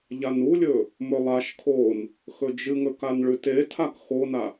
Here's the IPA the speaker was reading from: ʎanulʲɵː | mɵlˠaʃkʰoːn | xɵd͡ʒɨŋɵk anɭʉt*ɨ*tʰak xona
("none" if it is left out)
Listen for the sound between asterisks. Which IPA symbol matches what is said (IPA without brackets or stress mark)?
e